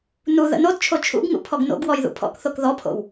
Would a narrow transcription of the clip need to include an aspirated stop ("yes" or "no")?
yes